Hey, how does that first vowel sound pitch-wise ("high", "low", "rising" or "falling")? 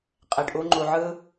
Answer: low